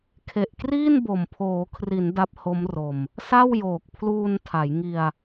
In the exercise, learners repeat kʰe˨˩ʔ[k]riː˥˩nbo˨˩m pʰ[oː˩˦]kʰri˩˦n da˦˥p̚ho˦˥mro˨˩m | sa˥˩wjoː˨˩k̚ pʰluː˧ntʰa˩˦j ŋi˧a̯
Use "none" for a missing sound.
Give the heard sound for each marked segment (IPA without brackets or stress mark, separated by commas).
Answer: k, oː˩˦